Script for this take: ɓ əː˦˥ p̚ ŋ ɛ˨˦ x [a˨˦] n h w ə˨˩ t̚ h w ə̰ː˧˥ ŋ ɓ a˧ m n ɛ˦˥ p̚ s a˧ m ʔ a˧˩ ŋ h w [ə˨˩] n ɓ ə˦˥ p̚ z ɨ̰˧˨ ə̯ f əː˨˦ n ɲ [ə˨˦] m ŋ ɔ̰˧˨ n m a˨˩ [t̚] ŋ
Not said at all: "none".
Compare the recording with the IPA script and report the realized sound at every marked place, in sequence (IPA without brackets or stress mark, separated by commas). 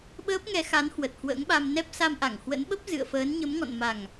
a˨˦, ə̰˧˥, ə˨˦, none